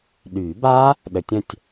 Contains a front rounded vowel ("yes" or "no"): yes